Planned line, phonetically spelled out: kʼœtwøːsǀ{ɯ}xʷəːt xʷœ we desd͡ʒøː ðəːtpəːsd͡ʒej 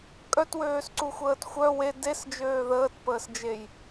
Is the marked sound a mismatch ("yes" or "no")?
yes